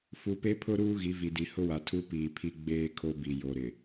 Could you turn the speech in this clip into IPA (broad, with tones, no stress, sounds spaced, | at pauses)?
f u˨ p e˦ pʰ ʊ˦ ɾ uː˦ ɣ i˨˦ v i˨ d i˨ h ʊ˦ w a˨ tʰ u˦ p iː˨ pʰ i˦ ɡ͡b eː˦ kʰ o˦ b i˨ j o˨ ɾ ɪ˨